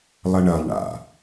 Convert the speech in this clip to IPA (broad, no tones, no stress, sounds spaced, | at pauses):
lˠ ɐ ɳ ɐ lˠ ɳ a̰